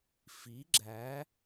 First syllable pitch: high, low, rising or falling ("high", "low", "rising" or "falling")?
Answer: rising